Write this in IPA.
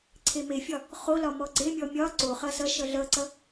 ǀʰ e m e fʲ ɒ | χ o l ɒ m ɔ ɡ͡ǀ e mʲ ɔ mʲ ɒ ǀ o χ ʌ s ʌ ʃ ʌ ɮ ʌ ǀ ʌ

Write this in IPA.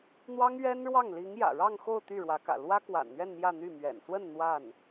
n̪ w ɑ˥ ŋ ɥ ɛ˥ n ɻ w ɑ˥˩ ŋ l i˧˥ ŋ j ä̰˨˩ ɻ ɑ˥˧ ŋ x o˥˧ ʊ̯ t̪ y˥˩ ɻ w ä˧˥ k ä̰˨˩ l w ä˥ k w a̰˨˩ n n̪ ɥ ɛ˥˧ n m j ä˥˧ n̪ y˥˩ m ɥ ɛ̰˨˩ n s w ə˥˧ n n̪ w a˥˩ n

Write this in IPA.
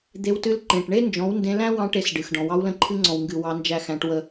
d̪ e˧ w t ɨ˧ l ǃ ẽ˨ ʈ ɳ e˦ n d͡ʒ ɔ̃˨˦ w n d ẽ˧ l æ̃˦ w ɑ̃˧ ʈ e˧ s ɖ ɨ˨ x ɖ ɔ̃˨ w ɑ˧ w l ə̃˧ ǃʰ ɨ˧ ŋ͡ǀ ɔ̃˨ w ŋ ɡ ɨ˨ w ɑ˧ n d͡ʒ æ˦˨ x æ̃˧ ʈ w ə˧

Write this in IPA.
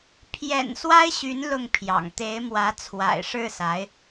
pʰ j ɛ̰˨˩ n s w a˥ ɪ̯ ɕ y˧˥ n l ʊ˥˩ ŋ pʰ j ɑ̰˨˩ ŋ t̪ e˧˥ ɪ̯ m w ä˧˥ t͡sʰ w a̰˨˩ ɪ̯ ʂ ɻ̩˥˩ s a˧˥ ɪ̯

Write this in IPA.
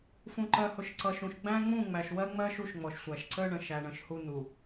f ũ˨ ǃ ɜ˨ h ʊ˨ ʃ ǀ ʌ˨ ʃ ũ˨ ʃ ɡ͡b æ̃˦ ŋ͡m ũ˦˨ ŋ͡m æ˨ ʃ w ɜ˦ ŋ͡m ɜ˦ ʃ u˦ ʃ ŋ͡m ɔ˨ ʃ sʷ æ˨ ʃ ǀ ə˦ ɳ ə̃˨ ʃ æ˨ ɳ ə̃˨ ʃ h u˦ n̪ u˨

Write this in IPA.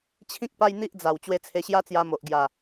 t͡ɕʰ ĩ˦ k̚ p a˦ j n̪ i˦ ʔ d͡z a˨˩ w t͡ɕ w e˧ t͡sʰ e˧ ɕ j a˦ t͡s j a˧ m o˨ ʔ ɡ j a˨˩

